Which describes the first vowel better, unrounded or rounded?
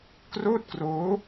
rounded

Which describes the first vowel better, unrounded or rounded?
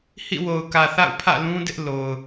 unrounded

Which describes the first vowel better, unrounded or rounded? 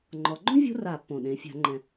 rounded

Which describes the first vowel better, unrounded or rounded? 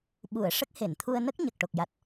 rounded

